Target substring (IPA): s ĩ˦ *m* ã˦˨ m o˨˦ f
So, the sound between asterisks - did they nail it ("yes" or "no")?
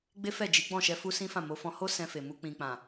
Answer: no